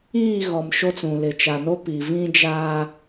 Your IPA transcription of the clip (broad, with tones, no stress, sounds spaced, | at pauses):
iː˦˨ ɣ ɔ˨ m ʃ o˦ t͡s ũ˨ l ɪ˨ t͡ʃ a˨ n o˦ p i˨ v ĩ˦ d͡ʒ aː˦